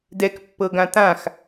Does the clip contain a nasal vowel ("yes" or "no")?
yes